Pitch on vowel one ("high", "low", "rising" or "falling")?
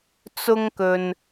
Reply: high